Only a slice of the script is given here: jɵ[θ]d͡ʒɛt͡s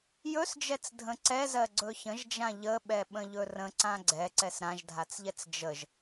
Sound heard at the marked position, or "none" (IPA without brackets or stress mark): s